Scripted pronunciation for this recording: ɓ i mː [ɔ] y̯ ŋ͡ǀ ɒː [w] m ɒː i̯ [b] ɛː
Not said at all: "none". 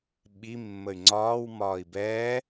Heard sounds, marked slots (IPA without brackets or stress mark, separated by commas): ə, w, b